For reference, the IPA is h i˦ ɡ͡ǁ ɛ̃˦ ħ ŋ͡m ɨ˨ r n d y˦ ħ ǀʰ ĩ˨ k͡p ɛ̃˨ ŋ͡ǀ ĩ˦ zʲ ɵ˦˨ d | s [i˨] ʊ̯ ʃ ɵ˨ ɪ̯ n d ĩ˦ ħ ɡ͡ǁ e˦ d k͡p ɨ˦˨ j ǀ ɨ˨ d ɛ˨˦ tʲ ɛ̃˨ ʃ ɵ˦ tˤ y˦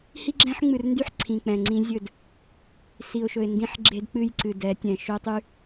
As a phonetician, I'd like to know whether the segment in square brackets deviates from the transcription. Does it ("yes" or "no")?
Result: no